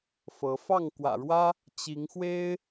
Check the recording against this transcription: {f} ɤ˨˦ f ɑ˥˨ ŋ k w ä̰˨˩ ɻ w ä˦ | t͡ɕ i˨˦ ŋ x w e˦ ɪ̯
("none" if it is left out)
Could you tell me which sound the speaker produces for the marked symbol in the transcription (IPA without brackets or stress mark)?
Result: f